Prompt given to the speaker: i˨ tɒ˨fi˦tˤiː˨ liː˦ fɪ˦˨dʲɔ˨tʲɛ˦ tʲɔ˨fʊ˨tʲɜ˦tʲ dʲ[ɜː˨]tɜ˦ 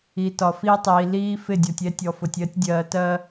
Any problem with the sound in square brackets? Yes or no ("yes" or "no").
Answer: no